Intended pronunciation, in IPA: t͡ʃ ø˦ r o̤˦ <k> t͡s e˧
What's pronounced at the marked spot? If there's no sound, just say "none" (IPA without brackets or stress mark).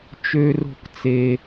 k